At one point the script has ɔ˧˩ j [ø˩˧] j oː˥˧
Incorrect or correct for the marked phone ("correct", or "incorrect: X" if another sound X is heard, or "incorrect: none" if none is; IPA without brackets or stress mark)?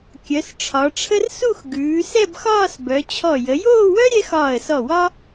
incorrect: ə˩˧